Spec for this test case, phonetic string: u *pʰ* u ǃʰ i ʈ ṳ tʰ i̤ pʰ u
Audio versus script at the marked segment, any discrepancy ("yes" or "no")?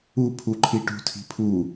no